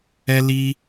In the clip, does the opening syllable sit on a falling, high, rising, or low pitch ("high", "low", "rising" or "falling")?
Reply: high